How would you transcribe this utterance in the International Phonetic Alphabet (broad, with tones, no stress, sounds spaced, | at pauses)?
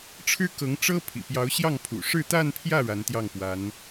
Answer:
ʈ͡ʂʰ ɻ̩˥ k ɤ˧˥ ŋ ʈ͡ʂ ɤ˥ pʰ ḭ˨˩ p j ɑ˧˥ ʊ̯ ɕ j ɑ˥˩ ŋ pʰ ṵ˨˩ ʂ ɻ̩˥˧ t̪ a˥˧ n pʰ j ä˥˩ ɻ a˧˥ n t̪ j ɑ˥˩ ŋ p w a˧˥ n